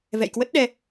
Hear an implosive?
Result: yes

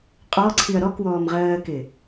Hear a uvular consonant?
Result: yes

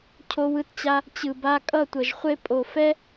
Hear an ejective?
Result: yes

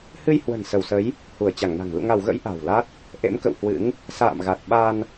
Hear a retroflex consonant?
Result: no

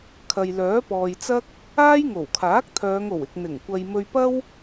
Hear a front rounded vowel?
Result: yes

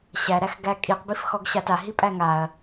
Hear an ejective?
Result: yes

